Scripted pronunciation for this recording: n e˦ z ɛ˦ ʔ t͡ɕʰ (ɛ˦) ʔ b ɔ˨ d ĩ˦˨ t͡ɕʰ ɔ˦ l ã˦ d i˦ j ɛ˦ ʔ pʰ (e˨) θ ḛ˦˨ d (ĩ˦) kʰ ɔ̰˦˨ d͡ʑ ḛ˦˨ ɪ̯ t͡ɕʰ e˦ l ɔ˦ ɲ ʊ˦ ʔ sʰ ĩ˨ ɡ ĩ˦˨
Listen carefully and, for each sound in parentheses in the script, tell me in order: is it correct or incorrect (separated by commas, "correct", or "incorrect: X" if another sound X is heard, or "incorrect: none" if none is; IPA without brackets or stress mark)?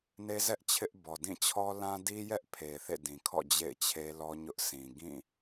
incorrect: ɪ˦, correct, incorrect: ĩ˨